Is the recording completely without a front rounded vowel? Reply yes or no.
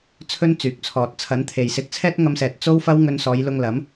no